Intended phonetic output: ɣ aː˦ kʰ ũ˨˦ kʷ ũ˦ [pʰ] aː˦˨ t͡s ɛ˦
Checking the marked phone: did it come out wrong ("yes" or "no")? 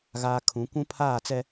no